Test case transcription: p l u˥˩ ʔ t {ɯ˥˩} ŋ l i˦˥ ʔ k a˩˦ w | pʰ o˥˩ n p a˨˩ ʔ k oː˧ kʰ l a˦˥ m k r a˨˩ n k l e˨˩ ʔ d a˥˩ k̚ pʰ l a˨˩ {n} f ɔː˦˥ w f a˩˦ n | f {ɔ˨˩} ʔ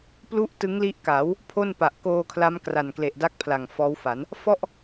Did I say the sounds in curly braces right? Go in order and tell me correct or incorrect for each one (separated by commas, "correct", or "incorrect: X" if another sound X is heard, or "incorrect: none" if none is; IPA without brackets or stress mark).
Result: incorrect: ɯ˦˥, incorrect: ŋ, incorrect: ɔ˥˩